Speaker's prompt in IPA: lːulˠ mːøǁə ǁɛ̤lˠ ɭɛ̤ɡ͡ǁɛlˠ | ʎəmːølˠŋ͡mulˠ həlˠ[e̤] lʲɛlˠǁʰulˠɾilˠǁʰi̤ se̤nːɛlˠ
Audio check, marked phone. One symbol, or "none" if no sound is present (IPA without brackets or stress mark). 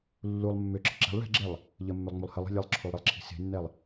e̤